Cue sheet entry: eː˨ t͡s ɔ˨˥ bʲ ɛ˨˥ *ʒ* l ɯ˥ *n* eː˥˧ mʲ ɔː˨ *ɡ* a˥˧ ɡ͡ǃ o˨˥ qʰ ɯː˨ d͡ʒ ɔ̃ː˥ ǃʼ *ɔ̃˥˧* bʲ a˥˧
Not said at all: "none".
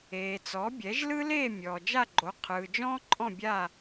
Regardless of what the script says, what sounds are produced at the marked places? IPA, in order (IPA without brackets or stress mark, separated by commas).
ʒ, l, d͡ʒ, ɔ̃˥˧